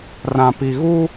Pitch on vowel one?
low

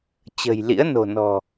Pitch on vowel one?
low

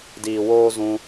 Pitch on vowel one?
low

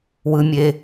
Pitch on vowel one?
high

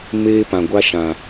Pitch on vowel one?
high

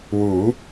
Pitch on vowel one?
rising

